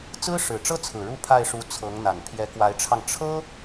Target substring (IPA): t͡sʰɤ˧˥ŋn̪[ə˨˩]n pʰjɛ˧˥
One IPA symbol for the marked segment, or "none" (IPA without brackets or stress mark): a˨˩